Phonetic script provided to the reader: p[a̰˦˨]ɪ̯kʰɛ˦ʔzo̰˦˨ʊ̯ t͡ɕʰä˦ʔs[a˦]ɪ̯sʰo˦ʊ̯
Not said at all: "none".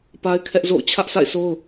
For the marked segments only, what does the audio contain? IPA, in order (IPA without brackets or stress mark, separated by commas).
a˦, a̰˦˨